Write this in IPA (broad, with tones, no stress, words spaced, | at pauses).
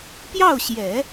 pjɑ˥˩ʊ̯ɕjɛ˨˩˦